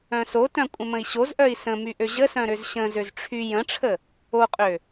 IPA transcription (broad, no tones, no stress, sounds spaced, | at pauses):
œ̃ s o t œ̃ kʷʼ ə̃ m ə̃ i̯ ɕ o z ʔ œ i̯ s ə̃ m y ʔ ø ʑ ə s œ̃ ɾ ø z ɕ ə̃ z ø z ʈ͡ʂʰ y j ə̃ ʈ͡ʂʰ ə | o qʼ ø